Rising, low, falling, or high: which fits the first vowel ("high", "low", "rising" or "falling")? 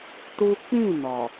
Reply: high